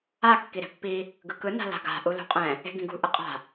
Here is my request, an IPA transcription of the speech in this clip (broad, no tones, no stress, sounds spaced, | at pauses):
a kː i ɾ e̤ pː i | ɡ ɯ k ɯ n a̤ l a̤ ɡ a̤ ʔ u l ṳ qʼ ɛ̃ | e̤ ɡ ĩ ɡ ṳ ʔ ɯ qʼ a̤